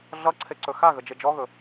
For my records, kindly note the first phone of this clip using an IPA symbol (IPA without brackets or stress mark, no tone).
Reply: ɮ